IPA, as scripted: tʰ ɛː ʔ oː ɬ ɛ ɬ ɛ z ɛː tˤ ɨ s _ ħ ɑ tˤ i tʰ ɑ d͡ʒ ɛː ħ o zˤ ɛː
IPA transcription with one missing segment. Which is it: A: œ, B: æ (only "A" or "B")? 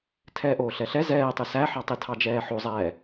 B